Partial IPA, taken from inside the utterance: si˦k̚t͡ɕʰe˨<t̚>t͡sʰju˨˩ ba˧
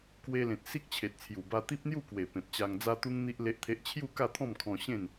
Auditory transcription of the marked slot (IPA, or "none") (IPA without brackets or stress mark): t̚